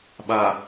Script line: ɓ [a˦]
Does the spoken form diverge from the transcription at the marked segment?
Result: yes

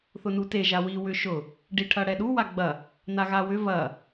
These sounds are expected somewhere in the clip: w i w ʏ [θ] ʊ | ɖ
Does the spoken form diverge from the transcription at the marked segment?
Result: yes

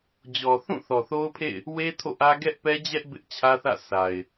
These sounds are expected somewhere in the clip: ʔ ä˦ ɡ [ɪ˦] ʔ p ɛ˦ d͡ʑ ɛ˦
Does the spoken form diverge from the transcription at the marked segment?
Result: yes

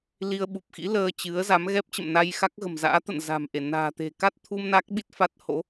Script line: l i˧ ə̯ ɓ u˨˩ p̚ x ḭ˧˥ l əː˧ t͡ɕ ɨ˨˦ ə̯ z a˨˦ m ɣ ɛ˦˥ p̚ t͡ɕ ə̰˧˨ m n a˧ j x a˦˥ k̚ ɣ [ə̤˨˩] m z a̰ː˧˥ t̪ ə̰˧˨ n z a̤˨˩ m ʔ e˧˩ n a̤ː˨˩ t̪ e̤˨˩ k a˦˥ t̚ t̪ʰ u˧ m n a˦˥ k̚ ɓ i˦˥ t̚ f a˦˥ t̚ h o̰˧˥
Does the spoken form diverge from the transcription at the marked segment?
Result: no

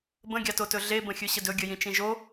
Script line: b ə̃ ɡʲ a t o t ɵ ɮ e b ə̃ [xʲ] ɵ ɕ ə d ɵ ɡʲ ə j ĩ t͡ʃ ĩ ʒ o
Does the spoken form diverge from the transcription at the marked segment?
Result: no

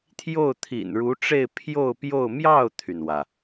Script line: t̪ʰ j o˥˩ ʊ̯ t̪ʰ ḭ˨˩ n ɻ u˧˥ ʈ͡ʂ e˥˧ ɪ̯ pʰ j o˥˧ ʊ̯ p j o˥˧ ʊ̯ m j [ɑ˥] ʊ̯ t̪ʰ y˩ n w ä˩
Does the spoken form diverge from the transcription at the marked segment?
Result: yes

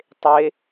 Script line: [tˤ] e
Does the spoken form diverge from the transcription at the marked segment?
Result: no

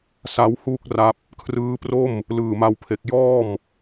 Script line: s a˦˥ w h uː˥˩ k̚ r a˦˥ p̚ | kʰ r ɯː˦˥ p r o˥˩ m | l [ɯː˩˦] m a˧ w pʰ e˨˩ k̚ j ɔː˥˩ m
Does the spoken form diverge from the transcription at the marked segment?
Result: yes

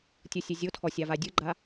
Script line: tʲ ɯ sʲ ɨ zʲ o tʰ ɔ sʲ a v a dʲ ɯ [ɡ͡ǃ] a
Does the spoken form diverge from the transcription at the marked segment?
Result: no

